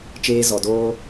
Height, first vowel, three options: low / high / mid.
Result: mid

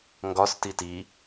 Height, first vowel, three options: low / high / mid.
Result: low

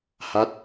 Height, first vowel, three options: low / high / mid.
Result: low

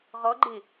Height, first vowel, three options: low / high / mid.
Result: mid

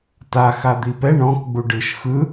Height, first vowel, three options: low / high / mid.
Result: low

